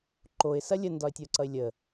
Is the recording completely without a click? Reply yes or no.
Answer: no